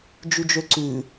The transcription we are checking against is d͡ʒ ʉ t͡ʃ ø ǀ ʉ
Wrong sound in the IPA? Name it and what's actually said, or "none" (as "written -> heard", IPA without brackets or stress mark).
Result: t͡ʃ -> d͡ʒ